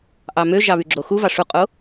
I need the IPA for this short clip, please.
ʔ ɑ m ø ʒ ɑ β y ɡ͡ǁ o x u v ɑ ʂ u qʼ o

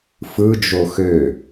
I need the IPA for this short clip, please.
f ɯ d͡ʒ o x ø

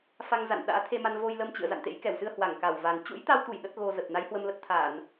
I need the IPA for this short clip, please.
f a˧ ŋ z a̰˧˨ n ɗ a̰ː˧˥ t̪ʰ e˧ m a˧ n v o˧ j l ə˧ m t͡ɕ ɨ̰˧˨ ə̯ z a̰˧˨ n t̪ ḛ˧˥ j k ɛ˧˩ w s ɨ˧ ə̯ h w a˧˩ ŋ k a˧˩ w v a˨˩ n t͡ɕ ṵ˧˥ j t̪ a˧ w t̪ u˧˩ j ɗ ə˦˥ t̚ ɣ o˧ z ə˨˩ t̚ n a˨˦ j h w ə˧ m l ə˦˥ t̚ t̪ʰ aː˧˩˨ n

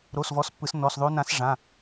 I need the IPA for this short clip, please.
ɾ o˩˧˩ s v ɔ˩˥ s pː ɯ˩˧ s n ɔ˩˧˩ s ðˤ o˧˥ n ã˧˥ s ʐ ã˩˧˩

